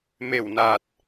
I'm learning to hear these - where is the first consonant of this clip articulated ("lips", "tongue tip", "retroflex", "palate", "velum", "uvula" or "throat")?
lips